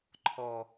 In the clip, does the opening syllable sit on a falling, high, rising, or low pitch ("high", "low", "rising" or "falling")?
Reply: low